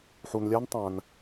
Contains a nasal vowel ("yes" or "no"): yes